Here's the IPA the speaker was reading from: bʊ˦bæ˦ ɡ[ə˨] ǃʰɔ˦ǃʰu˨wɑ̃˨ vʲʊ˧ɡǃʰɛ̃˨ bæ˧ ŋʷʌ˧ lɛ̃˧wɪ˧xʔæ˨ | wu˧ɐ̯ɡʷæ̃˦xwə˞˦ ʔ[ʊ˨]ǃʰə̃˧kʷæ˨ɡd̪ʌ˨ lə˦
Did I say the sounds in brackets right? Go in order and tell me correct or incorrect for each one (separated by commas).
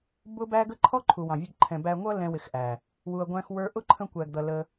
incorrect, incorrect